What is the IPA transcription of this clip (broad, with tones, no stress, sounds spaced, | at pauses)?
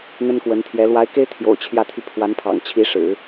n̪ ə˥ n k w ə˧˥ n t̪ʰ j ɛ˧˥ l w a˧˥ ɪ̯ k e˥ ɪ̯ t̪ʰ j o̰˨˩ ʊ̯ t͡ɕʰ j ä˥˧ t̪ʰ y˥˩ pʰ w a˧˥ n pʰ ɑ̰˨˩ ŋ t͡ɕʰ i˧˥ ʂ ɻ̩˨˩˦